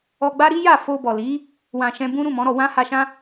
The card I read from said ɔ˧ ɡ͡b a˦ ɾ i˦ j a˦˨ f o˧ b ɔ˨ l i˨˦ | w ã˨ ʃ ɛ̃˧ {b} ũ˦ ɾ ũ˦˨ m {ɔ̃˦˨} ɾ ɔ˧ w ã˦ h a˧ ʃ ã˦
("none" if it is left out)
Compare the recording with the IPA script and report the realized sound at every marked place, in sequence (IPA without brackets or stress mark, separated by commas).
b, ɔ̃˨˦